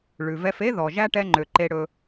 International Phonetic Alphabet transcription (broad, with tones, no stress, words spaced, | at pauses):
ɭʉ˨vɛ˧fe˦ ðɔ˨ʒæ˦ ʈɛ˦ŋ͡ǃø˨ǃe˧ ɽɵ˧